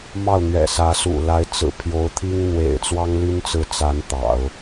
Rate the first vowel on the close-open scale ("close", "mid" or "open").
open